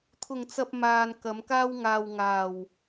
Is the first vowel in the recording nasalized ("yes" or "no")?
no